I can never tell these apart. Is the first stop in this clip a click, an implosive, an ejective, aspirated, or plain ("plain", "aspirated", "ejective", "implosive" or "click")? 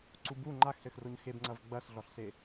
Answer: click